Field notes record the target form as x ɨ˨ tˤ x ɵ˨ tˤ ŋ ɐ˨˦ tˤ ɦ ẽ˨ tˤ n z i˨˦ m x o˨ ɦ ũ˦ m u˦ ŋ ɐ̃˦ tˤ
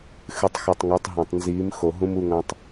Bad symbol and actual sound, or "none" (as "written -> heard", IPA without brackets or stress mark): none